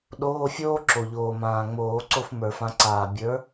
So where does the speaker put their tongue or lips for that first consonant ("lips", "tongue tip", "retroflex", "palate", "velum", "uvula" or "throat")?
tongue tip